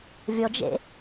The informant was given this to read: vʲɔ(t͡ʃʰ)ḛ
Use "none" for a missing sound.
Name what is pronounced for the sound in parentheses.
d͡ʒ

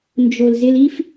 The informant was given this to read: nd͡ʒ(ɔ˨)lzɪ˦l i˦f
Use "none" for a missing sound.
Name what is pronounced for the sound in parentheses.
o˨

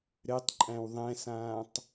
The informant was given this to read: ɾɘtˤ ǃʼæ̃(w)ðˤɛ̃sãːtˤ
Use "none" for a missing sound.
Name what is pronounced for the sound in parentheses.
w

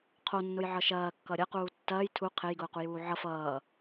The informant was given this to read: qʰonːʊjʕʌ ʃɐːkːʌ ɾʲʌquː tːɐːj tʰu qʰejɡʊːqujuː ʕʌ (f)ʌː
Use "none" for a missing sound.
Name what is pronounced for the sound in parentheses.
f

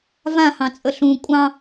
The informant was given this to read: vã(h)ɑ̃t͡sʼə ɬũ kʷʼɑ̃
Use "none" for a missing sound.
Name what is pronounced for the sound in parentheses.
h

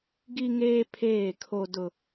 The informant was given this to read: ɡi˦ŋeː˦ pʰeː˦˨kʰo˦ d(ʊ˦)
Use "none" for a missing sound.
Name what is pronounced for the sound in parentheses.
ʊ˦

